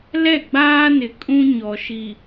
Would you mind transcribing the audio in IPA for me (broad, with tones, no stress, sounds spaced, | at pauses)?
l ɛ˦˨ ɡ͡b aː˦ n ɪ˨ kʼ ũ˦ ɲ ɔ˨ ʃ i˨